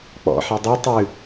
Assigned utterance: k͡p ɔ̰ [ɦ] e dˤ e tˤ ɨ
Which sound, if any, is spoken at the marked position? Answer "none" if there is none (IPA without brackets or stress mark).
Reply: ħ